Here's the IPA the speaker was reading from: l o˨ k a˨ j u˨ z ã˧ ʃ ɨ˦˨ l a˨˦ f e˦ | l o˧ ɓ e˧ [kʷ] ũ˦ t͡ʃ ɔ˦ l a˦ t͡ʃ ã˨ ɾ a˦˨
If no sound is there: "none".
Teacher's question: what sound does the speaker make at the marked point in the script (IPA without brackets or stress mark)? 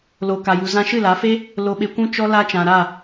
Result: kʷ